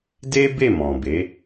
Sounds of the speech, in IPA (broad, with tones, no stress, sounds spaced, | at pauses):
d e˦ b e˦˨ m ɔ̃˨ b e˨˦